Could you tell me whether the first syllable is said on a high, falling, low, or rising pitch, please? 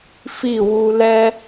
falling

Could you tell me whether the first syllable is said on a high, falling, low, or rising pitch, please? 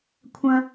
high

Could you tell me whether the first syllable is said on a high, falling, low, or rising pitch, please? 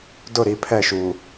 falling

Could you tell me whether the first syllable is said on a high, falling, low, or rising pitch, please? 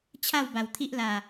falling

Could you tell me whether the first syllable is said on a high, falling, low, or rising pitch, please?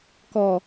low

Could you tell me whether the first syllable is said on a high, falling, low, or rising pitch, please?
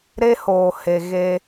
high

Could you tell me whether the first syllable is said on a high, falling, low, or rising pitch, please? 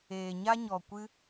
low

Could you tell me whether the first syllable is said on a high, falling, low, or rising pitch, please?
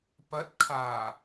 rising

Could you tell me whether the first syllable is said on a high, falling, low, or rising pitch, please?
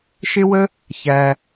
high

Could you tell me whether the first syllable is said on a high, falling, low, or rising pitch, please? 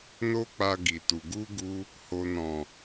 high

